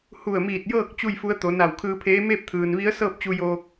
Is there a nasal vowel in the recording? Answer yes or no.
no